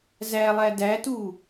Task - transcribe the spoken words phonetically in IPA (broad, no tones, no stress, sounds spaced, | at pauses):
z æ lˠ æ d æ t u